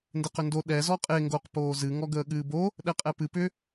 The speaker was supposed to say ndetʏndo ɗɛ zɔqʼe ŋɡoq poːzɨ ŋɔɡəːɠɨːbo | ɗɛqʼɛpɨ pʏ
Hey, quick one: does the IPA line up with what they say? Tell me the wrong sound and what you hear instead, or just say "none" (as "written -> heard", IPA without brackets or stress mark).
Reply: t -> q